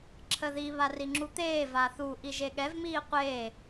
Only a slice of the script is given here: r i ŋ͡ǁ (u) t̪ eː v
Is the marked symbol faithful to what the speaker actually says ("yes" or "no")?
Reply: yes